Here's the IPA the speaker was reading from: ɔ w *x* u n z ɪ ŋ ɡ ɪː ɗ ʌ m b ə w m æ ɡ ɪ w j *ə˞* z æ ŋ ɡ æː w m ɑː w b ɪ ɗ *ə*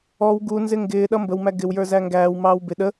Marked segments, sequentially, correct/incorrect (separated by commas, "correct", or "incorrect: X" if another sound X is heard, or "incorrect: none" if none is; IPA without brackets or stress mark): incorrect: ɡ, correct, correct